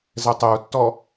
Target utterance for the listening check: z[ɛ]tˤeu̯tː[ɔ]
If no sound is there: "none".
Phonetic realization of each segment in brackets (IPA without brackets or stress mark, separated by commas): ɛ, ɔ